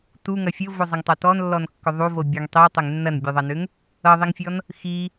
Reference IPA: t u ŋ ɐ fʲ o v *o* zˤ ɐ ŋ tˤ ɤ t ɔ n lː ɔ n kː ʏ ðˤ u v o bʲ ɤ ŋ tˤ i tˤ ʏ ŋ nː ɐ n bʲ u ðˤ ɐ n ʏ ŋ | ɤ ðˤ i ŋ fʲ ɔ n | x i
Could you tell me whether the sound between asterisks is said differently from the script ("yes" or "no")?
no